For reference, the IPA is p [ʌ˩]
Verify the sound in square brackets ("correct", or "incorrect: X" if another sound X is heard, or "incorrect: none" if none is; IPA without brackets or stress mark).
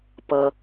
correct